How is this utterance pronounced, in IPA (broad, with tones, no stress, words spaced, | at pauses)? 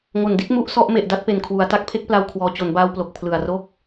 ŋo˨˩ndi˦˥t̚ mu˦˥ʔ sɔ˥˩ʔ me˨˩ʔda˦˥t̚pe˨˩n kʰwu˩˦a̯ta˦˥k̚pʰe˥˩k̚pla˧w kʰwɔː˩˦t͡ɕo˩˦nbaː˧wplo˨˩k̚ pʰlɯ˨˩a̯ro˥˩k̚